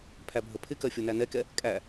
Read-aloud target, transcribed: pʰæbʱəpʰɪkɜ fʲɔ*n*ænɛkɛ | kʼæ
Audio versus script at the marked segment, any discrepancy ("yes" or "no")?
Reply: no